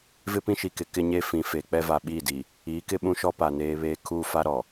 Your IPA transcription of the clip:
v ɪ˦ p ĩ˦ ʃ i˨ k ɪ˨ k ɪ˦ ɲ e˦ f ĩ˨ f e˨ k͡p ɛ˦ v a˨ ɓ iː˦˨ d i˨ | iː˨˦ k ɪ˦ ɓ ũ˦ ʃ ɔ˦ p a˨ n eː˦ β eː˦ kʰ uː˦ f a˦ ɾ ɔ˨

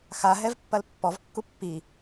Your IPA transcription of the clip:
x a ɦ ɛ v pː ɐ l pː ɔ v kː u pː i

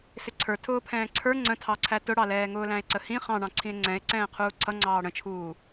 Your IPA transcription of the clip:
s ɪ ǀʰ ə˞ tʰ ʊː pʰ ɛ̃ː ǀʰ ə˞ ŋ͡ǀ ə̃ tʰ ɑ ǀʰ æ t ʊ ɽ ɑ l ɛː ŋ ʊː l æ̃ e̯ ǀ ə h ĩ χ ɑ̃ ɳ ɑ̃ ǀʰ ĩ e̯ ŋ͡ǀ ɛ̃ e̯ ǀ ɛ̃ː qʰ uː ǀʰ ʌ ŋ͡ǀ ɑː ɽ ə̃ t͡ʃʰ uː

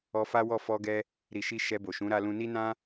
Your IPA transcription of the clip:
ɔ˧ f a˦ w ɔ˦˨ f ɔ˧ ɡ ɛ˧ | ɾ i˨ ʃ i˧ ʃ ɛ˧ b o˨ ʃ ũ˨˦ ɾ a˧ l ũ˧ n i˦ n ã˦

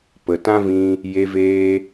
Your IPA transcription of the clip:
p ə˨ t ã˦ v ĩ˧ | j e˧ v eː˧

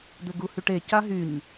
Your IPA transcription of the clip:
d̪ ɘ ɡ u h y ʈ e c a ɦ y ɲ

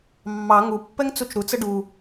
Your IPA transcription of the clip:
mː ɑ ŋ u pː ɛ ŋ t͡s u t͡ʃ ɾ u t͡s ə ɖ u

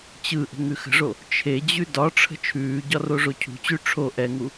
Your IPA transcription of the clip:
t͡ɕ ɯ ʔ ə̤ ŋ ʉ x ə̤ ʐ o | t͡ʃʰ e d͡ʑ ʉ d ɒ ʈ͡ʂʰ ə̤ t͡ʃʰ ʉː ɟ ɒ r o ʐ o cʰ ṳ t͡ɕ ʉ ʈ͡ʂʰ o ʔ ɛ ŋ u

